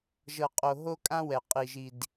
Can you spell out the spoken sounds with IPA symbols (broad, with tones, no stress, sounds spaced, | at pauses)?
ʒ ɤ˨ qʼ o˨ ɦ o˦ kʼ ã˦ w ɛ˨ qʼ i˨ ʒ i˨ d